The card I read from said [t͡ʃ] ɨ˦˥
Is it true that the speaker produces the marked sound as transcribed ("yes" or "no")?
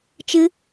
yes